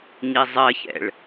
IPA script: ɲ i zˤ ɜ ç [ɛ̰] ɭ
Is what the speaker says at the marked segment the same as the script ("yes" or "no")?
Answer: yes